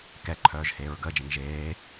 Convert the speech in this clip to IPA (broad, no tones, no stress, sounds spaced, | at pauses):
k ɛ ǃʰ œː ʒ h eː ɹ ɡ əː d͡ʒ ɛ̃ ŋ ʒ eː